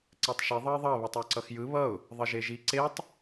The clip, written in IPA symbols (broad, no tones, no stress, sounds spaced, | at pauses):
ǀ ɛ tˤ ʃ i ðˤ ʌ ɪ̯ ðˤ ʌ β ɛ tˤ o ǀ ʌ x j ɯ β ʌ ʊ̯ | ðˤ ʌ ʒ e ʒ i ǀ e tˤ